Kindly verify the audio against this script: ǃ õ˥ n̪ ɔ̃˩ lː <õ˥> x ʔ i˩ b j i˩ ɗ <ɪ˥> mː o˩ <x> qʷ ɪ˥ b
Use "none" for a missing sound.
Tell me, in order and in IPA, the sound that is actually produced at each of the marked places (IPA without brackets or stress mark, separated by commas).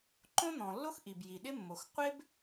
o˥, ɪ˥, x